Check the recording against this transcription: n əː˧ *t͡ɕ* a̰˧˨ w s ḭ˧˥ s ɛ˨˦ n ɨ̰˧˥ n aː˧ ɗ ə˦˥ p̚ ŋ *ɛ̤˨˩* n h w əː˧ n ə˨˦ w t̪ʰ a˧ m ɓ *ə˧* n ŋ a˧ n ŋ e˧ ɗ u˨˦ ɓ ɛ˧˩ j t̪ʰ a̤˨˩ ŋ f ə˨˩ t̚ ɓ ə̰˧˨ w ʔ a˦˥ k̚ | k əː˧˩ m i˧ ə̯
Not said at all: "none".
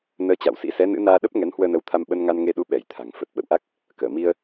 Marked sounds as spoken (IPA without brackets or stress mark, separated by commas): t͡ɕ, ɛ˨˦, ə˧